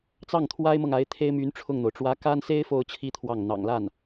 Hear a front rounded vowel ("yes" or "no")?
yes